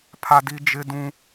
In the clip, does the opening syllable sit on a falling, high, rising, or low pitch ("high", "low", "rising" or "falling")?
high